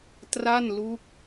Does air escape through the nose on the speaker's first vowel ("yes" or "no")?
no